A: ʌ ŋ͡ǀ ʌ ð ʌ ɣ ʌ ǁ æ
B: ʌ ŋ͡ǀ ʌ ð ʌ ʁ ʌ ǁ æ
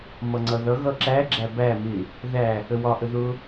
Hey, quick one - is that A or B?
A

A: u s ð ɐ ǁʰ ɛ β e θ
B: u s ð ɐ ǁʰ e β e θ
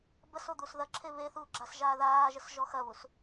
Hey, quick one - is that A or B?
B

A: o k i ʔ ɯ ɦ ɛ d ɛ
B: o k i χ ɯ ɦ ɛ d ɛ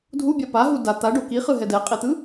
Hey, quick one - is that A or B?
B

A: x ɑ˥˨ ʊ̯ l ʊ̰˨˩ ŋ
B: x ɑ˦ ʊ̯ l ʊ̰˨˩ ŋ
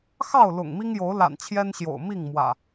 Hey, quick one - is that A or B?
A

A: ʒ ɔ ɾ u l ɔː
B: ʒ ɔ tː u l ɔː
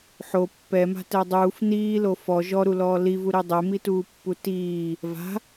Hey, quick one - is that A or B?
A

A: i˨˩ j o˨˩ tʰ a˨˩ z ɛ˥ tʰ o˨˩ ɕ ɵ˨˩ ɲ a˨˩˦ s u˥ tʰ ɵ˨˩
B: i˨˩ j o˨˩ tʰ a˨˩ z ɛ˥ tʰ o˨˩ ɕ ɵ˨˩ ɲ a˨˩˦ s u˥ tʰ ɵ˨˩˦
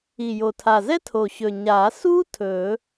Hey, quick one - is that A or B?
B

